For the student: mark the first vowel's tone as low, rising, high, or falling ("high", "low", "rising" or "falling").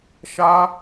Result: high